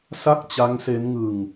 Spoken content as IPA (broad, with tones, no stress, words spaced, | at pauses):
sa˥˩k̚t͡ɕa˦˥ŋse˦˥n ŋɯ˧ŋ